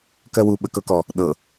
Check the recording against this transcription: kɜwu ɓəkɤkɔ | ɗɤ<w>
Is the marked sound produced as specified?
no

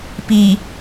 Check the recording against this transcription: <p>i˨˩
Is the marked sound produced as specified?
yes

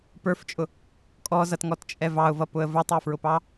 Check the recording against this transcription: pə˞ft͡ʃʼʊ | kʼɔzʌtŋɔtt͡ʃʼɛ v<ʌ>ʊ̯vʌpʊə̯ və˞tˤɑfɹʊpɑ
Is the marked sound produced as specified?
no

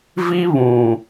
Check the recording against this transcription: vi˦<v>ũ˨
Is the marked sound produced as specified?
no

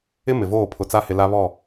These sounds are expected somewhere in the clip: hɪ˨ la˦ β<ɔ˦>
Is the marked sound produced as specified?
no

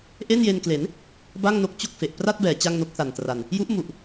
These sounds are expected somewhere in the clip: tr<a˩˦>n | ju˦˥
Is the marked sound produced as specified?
no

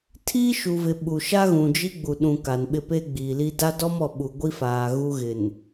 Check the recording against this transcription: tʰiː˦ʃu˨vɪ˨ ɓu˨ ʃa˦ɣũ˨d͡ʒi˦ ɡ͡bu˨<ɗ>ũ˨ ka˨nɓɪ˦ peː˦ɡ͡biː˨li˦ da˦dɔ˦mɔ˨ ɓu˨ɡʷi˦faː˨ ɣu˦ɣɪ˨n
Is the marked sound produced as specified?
yes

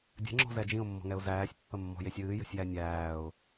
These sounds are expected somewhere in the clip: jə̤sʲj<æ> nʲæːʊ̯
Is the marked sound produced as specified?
yes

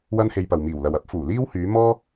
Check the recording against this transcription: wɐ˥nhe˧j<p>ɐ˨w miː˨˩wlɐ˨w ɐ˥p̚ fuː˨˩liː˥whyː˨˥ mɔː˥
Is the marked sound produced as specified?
yes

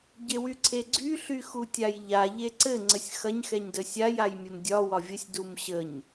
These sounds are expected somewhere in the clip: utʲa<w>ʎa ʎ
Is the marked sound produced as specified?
no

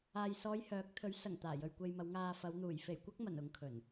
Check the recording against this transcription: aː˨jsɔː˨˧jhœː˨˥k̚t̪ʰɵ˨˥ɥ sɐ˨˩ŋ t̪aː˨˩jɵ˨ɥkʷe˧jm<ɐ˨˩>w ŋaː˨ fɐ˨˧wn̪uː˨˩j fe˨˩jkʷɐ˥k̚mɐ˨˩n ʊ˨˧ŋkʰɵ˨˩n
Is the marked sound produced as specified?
no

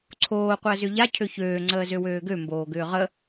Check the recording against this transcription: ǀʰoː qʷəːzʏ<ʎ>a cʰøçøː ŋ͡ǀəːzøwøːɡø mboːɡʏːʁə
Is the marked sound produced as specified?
yes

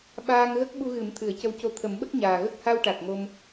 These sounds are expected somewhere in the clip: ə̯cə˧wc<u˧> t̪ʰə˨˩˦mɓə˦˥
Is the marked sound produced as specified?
no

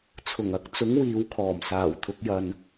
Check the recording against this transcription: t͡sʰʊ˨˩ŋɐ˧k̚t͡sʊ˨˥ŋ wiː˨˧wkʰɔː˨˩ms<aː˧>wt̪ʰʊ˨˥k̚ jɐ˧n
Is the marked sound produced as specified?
no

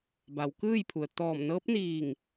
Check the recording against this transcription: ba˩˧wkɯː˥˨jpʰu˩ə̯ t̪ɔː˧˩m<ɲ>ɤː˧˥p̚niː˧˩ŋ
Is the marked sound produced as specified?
no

